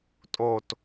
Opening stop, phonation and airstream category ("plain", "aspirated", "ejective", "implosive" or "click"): ejective